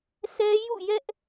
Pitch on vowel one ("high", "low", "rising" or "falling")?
high